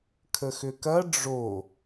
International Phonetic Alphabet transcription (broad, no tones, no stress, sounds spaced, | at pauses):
kʰ ə x ʏ k ɐ ɖ͡ʐ o